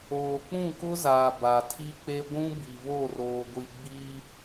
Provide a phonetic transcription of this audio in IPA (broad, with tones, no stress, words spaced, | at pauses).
oː˨k͡pũ˦˨kʊ˦zaː˨ ba˨tʰi˦k͡pe˦ ɡʷũ˦bi˨βo˦˨ roː˨ɡʷi˨ ɡ͡bi˦